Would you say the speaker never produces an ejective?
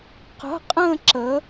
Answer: no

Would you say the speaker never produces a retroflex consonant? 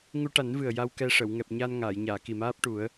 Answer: no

